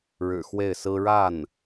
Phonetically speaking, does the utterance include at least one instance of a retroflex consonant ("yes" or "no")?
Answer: yes